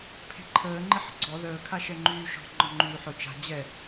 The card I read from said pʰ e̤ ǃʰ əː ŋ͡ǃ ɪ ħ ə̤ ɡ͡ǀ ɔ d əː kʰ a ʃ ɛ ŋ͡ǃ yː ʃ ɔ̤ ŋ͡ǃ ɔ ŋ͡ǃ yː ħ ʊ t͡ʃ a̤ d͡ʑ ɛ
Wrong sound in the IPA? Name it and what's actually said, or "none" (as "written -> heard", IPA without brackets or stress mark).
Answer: d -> ð